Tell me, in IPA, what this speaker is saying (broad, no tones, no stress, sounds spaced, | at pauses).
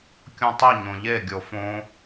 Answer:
kʲ õ tˤ i ɲ õ ʎ e ɡʲ o f õ